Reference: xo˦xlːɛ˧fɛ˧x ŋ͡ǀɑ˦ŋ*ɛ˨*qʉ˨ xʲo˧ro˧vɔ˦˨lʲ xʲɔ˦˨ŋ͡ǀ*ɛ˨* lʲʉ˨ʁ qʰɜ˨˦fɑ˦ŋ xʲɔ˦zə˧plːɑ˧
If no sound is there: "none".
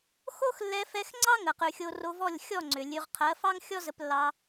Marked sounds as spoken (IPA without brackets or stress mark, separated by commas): ə˨, ʏ˨